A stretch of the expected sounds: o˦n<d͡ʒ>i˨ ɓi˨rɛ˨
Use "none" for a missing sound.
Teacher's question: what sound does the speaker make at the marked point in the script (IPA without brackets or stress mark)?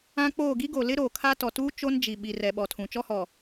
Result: d͡ʒ